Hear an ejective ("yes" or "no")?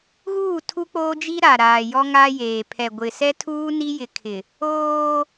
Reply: no